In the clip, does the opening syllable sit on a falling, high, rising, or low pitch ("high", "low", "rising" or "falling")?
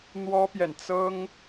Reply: high